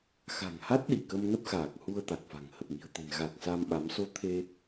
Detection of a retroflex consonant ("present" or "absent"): absent